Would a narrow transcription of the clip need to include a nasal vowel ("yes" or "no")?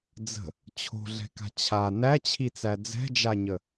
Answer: no